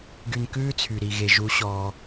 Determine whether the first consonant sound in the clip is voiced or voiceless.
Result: voiced